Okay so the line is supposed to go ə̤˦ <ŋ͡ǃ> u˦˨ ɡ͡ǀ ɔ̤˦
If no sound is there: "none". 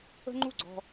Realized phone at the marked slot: ŋ͡ǃ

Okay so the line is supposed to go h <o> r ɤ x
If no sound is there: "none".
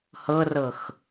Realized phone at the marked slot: ɤ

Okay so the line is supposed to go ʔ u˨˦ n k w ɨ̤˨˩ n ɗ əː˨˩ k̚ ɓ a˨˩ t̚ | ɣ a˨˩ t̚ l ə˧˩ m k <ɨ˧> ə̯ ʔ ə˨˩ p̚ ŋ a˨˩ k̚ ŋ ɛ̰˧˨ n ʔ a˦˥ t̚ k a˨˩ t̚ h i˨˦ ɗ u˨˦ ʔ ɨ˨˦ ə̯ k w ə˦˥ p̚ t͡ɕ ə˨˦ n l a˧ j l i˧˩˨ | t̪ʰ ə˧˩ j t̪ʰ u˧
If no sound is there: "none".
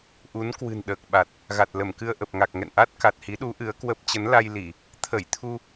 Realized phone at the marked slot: ɨ˧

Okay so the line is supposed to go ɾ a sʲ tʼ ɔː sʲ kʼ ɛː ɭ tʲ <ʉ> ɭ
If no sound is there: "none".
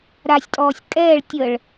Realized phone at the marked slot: ə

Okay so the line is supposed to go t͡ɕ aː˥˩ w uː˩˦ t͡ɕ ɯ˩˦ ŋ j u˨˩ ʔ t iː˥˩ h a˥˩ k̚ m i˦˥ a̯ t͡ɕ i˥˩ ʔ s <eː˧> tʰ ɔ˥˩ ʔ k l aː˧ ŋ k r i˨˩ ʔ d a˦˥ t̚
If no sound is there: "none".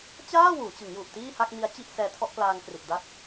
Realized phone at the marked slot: ɛː˧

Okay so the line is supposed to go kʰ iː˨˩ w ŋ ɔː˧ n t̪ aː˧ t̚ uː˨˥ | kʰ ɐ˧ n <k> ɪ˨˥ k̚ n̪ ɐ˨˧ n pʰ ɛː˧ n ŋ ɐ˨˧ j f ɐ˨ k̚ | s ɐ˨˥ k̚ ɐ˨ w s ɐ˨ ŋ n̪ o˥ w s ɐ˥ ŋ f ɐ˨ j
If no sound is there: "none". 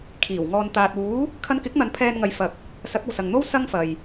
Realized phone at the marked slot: k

